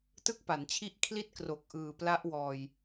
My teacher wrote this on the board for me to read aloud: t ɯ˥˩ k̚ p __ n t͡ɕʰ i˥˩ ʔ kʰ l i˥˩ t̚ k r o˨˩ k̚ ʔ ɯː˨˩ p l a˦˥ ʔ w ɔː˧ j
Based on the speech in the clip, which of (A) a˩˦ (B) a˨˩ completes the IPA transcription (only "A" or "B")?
A